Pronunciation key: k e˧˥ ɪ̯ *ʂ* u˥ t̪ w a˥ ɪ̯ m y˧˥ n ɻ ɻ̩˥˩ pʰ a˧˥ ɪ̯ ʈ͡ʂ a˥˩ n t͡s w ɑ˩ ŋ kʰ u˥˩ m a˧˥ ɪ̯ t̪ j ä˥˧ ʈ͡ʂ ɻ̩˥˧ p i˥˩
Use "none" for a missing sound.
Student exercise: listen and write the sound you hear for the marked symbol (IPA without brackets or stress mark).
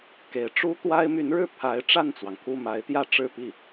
ʈ͡ʂ